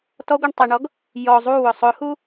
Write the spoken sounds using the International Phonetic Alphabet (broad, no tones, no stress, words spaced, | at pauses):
tɔɡʷaɳ tˤiɳɔɡ | jɔ zˤuwʊ sˤʊhu